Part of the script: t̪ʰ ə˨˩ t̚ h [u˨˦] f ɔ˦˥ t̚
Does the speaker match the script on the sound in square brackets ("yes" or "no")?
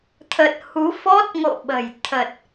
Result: yes